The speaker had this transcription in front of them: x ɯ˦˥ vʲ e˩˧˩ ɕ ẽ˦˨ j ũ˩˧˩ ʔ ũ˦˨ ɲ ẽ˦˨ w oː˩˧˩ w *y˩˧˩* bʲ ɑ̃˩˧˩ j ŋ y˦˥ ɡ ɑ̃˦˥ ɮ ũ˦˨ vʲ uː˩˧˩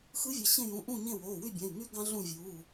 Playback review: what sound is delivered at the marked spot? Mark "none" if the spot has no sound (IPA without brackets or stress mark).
y˦˨